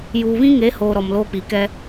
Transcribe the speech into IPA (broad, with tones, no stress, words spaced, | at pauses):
juː˨βĩ˦ŋe˨˦hoː˨ ɾɔ˨mloː˦k͡pi˨ kɛ˦